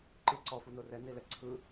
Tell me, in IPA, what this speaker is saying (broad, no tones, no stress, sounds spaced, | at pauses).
ǃ ɯ ǀ ɔ f u n o r ɛ n i l ɛ ǀʰ ɯ